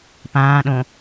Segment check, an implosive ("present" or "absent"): present